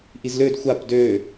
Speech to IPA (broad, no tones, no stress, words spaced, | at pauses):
ʔizlød xʷap dø